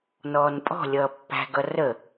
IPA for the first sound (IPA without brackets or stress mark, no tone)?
n